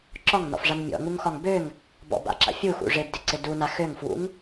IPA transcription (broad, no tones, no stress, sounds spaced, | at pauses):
ǁ ɒ ŋ n ɔ̰ f ʐ a n mʲ ɔ̰ ŋ u ŋ x ɒ ŋ b ø ŋ | b ɔ̰ b a̰ ǁ a̰ fʲ u x ṵ ʐ ɪ b d ɪ ǀ ɪ d u n a x ø ŋ f w ṵ ŋ